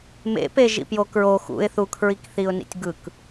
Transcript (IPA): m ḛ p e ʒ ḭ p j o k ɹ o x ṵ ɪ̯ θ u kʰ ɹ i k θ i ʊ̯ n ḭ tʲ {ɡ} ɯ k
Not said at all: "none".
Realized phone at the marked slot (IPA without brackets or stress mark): ɡ